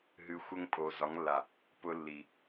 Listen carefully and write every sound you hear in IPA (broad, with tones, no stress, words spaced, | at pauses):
ɦɨ˨xʷə˦ŋ pʼo˨zɒ˨˦ŋlːa˨ | pʊ˦lːi˨